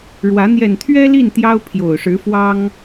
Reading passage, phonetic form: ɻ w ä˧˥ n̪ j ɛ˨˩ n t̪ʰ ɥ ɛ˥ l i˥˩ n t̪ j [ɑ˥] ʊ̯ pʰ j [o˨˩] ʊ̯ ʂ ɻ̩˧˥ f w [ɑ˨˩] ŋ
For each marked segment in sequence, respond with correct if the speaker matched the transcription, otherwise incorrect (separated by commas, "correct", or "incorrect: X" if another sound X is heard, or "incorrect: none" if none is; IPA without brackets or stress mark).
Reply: correct, correct, incorrect: ɑ˥